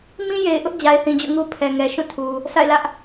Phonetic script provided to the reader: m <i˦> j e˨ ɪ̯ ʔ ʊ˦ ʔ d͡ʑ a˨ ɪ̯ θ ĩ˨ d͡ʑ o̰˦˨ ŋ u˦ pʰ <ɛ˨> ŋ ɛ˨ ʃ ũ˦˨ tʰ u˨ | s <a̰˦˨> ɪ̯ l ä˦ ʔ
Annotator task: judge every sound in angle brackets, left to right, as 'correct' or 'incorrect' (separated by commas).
incorrect, correct, correct